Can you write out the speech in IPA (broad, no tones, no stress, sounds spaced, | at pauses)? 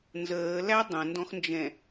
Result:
n z əː l æ dˤ ə̃ n d ɔ̃ x n d͡ʒ ɛ̃